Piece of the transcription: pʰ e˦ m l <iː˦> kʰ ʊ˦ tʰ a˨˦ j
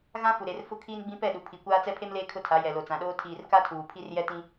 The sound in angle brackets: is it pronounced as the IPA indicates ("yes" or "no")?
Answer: no